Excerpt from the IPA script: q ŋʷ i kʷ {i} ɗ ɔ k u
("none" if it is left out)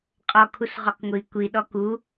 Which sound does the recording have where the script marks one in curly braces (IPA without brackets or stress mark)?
i